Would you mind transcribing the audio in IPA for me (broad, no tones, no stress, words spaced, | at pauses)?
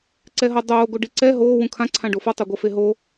ǀɛɦʌ dˤoː ɡoɖiǀɛ ɦoː wũkʰã ǀʰãɖofʌ tˤoɡʷʌfeɦo